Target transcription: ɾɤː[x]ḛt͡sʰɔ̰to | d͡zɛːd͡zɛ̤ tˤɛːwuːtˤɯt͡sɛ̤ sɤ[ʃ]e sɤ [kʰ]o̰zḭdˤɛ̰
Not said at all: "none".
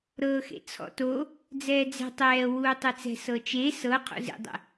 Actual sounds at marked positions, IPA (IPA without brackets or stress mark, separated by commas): x, t͡ʃ, qʰ